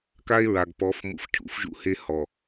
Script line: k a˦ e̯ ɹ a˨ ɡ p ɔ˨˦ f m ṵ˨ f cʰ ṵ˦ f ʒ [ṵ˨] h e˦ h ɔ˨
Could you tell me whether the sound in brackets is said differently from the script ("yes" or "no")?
yes